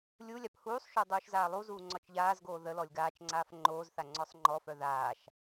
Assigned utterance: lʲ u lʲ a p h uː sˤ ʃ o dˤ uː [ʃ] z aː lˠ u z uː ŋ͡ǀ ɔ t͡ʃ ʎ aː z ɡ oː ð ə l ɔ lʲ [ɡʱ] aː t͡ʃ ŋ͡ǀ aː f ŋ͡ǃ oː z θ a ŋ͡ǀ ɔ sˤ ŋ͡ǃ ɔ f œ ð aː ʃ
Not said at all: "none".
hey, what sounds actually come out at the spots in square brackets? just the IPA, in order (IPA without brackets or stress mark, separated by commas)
ʃ, ɡ